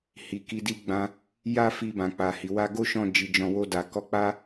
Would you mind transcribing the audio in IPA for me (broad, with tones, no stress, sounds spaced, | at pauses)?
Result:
h i˨ k i˨˦ d i˧ ɡ͡b ã˧ | j a˦ f i˧ b ã˨ k͡p a˨ h i˨ w a˧ ɡ o˦ ʃ ɔ̃˦˨ d͡ʒ i˨˦ d͡ʒ ɔ̃˧ w o˧ d a˨ k ɔ˧ k͡p a˦